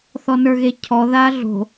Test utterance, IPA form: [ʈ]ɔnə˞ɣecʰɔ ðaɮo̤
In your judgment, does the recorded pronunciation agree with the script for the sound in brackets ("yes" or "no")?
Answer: no